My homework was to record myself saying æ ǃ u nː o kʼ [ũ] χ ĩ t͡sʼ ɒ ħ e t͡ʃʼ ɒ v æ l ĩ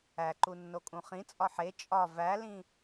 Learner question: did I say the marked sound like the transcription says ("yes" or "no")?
yes